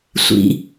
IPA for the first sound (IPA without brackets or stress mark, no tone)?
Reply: sʷ